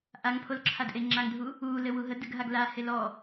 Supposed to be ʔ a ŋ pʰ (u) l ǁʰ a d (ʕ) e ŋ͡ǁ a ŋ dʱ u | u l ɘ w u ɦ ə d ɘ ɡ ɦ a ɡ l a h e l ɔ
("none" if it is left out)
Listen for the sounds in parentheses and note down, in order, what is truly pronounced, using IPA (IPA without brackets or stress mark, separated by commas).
o, ʔ